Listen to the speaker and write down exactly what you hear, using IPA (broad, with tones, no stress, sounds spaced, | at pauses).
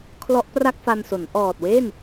kʰ l ɔ˦˥ ʔ p r a˥˩ k̚ f a˧ n s o˩˦ n ʔ ɔː˨˩ t̚ w e˥˩ n